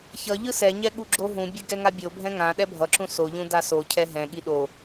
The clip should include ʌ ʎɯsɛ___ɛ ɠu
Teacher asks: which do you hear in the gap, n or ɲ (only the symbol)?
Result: ɲ